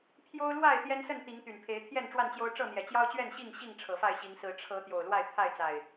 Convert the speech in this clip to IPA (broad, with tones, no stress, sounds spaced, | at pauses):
pʰ j o˦ ʊ̯ l w a˥˨ ɪ̯ t̪ j ɛ˦ n s ə˥˨ n t̪ i˨˦ ŋ t̪ y˨˩ n pʰ e˨˦ ɪ̯ t̪ʰ j ɛ˥˨ n ʈ͡ʂ w a˥˨ n t͡ɕ j o˦ ʊ̯ ʈ͡ʂ ɤ˥˨ n̪ j ɛ˨˩ t͡ɕ j ɑ˦ ʊ̯ t͡ɕ ɥ ɛ˥˨ n ɕ i˥˨ ŋ ɕ i˥˨ ŋ ʈ͡ʂʰ ɤ˨˩ f a˥˨ ɪ̯ ɕ i˨˦ ŋ s ɹ̩˨˦ ʈ͡ʂʰ ɤ˨˦ t̪ j o˨˩ ʊ̯ l w a˥˨ ɪ̯ pʰ a˥˨ ɪ̯ t͡s a˨˩ ɪ̯